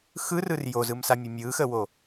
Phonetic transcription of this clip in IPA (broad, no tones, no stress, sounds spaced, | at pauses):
x ɯ r ɯ r j o z ɯ m s a mʲ ə mʲ ɯ x ə w o